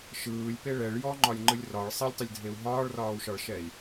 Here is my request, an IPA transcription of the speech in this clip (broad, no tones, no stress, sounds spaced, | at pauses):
ʃ ɯː lʲ p e ɭ ɛ ɭ j ɔ ŋ͡ǃ ɒ lʲ ŋ͡ǃ ɯ lʲ r ɒ ɭ sˤ ɛ lʲ tˤ ɯ lʲ dʱ e u̯ ɦ ɒː ɭ r ɒː u̯ ʃ ɒ ɭ ʃ ɛ i̯